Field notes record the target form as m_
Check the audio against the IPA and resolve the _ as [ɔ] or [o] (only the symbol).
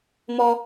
ɔ